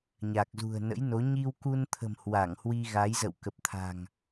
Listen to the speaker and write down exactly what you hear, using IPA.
ɲ a˨˩ k̚ z ṳ˨˩ ə̯ n ə̰˧˥ j n o˨˦ ɲ i˧ w k u˧ n t̪ʰ ə̤˨˩ m h w a˧˩ ŋ h w i˧ ɣ a˨˦ j z ə̰˧˨ w k ə˨˩ p̚ t̪ʰ a̤˨˩ ŋ

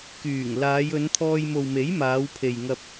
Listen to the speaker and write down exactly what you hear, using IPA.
k yː˨˩ ŋ l aː˨˧ j ɵ˨˧ n t̪ʰ ɔː˧ j m o˨ w m e˨˥ j m aː˨˧ w pʰ e˨ j ŋ ɐ˧ p̚

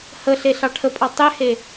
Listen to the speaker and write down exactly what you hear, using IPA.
h ə ɬ e ɬ ɑ ʈʰ ə pʼ ɑ tˤ e h e

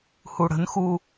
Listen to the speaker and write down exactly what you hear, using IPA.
h u ɽ ə̤ n x u

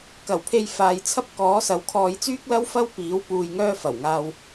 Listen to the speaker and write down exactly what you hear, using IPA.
k ɐ˨˩ w pʰ e˧ j f aː˧ j t͡sʰ ɐ˥ p̚ k ɔː˨˥ s ɐ˨˧ w kʰ ɔː˧ j t͡s yː˥ k̚ l ɐ˥ w f ɐ˥ w p iː˨˥ w p uː˧ j ŋ œː˥ f ɐ˨˩ w ŋ aː˧ w

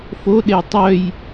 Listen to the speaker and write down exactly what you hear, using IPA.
f o ɗ e j tˤ œ j

